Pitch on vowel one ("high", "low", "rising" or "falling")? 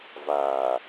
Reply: low